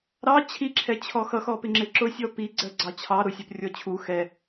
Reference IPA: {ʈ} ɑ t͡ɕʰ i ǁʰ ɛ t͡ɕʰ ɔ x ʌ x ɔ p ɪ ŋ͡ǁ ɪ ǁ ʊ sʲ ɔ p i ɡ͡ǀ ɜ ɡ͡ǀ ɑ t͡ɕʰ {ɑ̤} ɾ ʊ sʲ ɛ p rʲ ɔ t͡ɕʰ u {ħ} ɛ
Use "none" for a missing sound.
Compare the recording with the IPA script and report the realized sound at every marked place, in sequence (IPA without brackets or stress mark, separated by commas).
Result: ɾ, ɑ, x